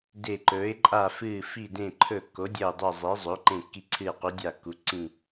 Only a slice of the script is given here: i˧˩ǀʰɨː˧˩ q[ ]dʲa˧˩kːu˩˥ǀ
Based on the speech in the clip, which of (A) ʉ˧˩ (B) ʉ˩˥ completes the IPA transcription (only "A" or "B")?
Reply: B